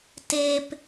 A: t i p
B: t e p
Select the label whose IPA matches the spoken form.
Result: B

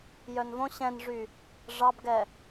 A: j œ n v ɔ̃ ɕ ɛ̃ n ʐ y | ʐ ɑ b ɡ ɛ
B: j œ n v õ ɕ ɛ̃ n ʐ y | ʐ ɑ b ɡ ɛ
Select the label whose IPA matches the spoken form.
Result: B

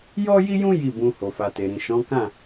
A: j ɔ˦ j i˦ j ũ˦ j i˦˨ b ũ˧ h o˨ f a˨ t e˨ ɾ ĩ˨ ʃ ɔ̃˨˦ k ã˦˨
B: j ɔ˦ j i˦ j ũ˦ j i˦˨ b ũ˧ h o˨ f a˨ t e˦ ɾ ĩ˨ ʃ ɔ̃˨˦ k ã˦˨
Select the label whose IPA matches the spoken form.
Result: A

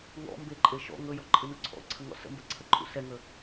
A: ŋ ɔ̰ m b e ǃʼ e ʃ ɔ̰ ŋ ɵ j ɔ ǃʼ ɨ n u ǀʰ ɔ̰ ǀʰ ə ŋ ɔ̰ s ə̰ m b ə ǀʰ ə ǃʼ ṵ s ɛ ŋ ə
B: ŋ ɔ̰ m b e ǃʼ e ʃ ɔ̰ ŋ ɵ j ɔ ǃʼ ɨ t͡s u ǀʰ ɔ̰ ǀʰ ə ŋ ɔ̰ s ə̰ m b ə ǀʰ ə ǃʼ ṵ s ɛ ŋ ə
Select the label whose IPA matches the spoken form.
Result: A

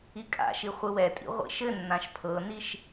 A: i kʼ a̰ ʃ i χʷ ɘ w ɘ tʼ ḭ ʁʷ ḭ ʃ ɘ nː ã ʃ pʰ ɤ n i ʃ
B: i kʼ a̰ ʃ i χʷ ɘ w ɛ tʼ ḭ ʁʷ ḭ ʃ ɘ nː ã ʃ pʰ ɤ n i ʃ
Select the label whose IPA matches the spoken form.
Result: B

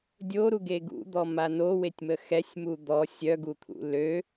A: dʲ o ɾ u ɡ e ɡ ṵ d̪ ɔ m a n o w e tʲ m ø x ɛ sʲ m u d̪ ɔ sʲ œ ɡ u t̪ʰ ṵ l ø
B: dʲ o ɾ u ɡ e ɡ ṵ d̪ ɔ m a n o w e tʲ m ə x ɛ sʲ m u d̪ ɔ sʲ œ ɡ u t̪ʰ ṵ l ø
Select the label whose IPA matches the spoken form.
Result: B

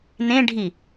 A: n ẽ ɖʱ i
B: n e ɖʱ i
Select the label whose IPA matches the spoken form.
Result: A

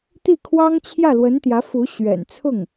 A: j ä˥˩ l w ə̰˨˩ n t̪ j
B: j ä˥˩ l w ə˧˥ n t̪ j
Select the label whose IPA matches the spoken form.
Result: B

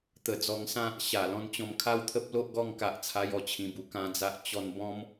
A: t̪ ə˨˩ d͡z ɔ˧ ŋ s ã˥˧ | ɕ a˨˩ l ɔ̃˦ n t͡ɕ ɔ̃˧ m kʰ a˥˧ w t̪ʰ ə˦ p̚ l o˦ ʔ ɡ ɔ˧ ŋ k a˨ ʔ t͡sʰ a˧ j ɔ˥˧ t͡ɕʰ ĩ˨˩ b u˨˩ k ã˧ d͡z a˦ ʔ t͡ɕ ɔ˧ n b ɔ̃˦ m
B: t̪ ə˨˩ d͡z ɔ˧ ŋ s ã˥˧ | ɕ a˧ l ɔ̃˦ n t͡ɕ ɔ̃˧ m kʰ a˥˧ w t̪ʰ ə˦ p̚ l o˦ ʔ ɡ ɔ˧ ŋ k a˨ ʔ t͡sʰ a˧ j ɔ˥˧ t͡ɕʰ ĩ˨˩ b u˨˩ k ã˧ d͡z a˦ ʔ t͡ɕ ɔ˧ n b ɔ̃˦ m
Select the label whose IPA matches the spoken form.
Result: A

